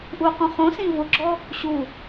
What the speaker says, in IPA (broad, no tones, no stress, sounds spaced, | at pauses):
ʔ u q ũ χ õ s ĩ v ʊ ɡ͡ǁ ɔ | ɕ u